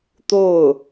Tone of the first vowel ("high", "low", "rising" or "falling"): falling